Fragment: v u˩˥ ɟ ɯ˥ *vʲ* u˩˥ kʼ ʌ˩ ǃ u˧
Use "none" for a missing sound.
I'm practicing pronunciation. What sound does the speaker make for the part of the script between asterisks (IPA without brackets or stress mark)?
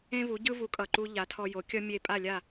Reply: v